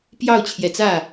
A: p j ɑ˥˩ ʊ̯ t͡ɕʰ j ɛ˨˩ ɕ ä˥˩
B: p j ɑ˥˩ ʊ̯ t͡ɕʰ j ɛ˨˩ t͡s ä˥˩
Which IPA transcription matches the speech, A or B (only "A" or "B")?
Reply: B